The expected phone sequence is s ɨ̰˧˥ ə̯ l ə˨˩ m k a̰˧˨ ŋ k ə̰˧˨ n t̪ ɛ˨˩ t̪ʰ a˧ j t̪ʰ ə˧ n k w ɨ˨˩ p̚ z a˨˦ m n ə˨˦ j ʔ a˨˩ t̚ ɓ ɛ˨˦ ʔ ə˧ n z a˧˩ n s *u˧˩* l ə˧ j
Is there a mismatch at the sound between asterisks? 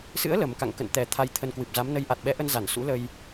yes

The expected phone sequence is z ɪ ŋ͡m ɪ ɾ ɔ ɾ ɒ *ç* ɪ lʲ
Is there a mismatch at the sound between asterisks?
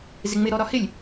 yes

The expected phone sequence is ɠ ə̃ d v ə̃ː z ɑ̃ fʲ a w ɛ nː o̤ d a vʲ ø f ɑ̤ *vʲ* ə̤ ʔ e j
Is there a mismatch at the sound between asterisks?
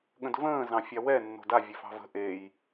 yes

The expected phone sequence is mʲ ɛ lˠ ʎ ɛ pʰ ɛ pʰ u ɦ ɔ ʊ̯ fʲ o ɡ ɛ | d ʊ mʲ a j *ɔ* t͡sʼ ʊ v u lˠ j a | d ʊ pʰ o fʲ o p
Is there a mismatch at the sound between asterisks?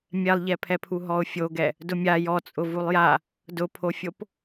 no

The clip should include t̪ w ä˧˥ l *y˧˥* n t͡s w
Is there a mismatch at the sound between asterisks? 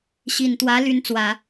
no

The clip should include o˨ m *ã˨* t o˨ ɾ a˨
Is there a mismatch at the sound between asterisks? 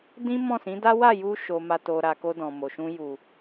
yes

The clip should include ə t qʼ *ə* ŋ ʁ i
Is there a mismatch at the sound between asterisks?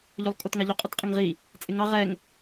no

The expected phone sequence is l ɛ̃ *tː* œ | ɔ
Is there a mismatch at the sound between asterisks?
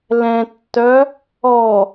no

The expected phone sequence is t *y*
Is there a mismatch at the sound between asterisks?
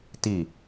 yes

